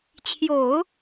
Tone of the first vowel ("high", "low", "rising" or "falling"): low